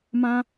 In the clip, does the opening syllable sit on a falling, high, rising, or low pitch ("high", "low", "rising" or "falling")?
high